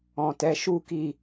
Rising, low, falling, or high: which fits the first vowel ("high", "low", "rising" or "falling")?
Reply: low